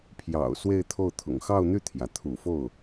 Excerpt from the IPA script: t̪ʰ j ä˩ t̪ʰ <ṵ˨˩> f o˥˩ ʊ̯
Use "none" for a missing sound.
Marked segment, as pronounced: ṵ˨˩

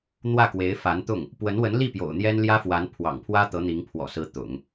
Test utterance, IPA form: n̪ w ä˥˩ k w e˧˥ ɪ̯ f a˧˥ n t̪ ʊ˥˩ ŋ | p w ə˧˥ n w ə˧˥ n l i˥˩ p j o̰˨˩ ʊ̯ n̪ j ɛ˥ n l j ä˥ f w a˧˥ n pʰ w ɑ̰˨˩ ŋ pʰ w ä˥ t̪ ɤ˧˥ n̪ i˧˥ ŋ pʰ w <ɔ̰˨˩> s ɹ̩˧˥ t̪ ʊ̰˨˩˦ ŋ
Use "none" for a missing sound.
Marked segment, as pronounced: ɔ̰˨˩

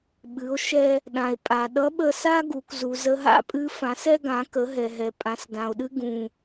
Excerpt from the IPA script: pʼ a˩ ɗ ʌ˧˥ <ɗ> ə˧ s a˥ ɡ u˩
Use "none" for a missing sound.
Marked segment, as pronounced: ɓ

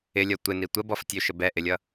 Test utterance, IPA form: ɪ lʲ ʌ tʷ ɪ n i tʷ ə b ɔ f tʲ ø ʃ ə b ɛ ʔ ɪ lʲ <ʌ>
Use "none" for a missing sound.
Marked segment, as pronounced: ʌ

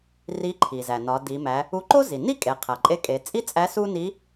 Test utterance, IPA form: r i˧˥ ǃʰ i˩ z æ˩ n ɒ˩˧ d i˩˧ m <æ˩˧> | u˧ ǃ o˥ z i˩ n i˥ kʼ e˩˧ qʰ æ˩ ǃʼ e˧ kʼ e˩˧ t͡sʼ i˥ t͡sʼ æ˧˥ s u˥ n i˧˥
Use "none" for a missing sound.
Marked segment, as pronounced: æ˩˧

